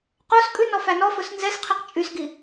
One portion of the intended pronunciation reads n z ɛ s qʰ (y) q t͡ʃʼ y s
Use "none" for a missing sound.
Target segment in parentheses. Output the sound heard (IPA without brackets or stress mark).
i